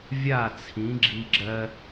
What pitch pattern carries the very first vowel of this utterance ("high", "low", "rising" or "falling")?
falling